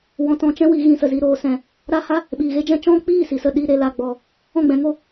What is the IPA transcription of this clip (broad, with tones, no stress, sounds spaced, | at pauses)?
w ɔ̃˧ t ɔ̃˧ t͡ʃ ɛ̃˦ w i˨˦ ɣ ĩ˧ s ə˨ z i˧ ɾ oː˨ s ɛ̃˨ | ɾ a˦ h a˦ | ɓ iː˨ ɣ e˦ d͡ʒ ɛ̃˦ t͡ʃ ɔ̃˦ k͡p iː˦˨ s i˨ s ə˦˨ ɗ i˧ ɾ e˨ l a˨ ɡ͡b ɔ˨ | ɔ̃˦˨ ɡ͡b ɛ̃˧ ŋ o˦